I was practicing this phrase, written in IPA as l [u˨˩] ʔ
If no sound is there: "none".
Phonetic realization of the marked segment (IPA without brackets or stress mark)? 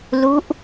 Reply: u˦˥